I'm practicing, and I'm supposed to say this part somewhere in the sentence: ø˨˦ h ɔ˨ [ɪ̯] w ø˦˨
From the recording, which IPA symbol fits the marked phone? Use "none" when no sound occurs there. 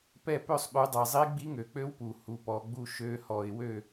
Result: ɪ̯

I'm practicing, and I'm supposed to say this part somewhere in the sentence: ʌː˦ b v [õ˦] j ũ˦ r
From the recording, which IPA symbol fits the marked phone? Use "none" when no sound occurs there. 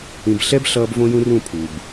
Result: õ˦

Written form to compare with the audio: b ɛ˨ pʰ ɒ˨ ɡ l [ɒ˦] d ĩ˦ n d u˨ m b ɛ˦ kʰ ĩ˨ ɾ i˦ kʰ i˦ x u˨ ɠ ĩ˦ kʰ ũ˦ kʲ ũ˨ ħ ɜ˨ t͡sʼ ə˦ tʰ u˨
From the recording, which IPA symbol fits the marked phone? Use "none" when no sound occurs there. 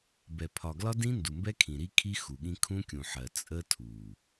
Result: ɒ˦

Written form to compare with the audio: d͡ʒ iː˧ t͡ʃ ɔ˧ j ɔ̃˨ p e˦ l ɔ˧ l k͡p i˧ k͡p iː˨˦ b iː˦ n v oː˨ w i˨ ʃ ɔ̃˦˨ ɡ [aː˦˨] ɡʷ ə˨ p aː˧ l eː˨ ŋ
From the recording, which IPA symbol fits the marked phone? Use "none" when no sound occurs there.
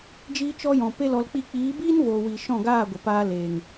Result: aː˦˨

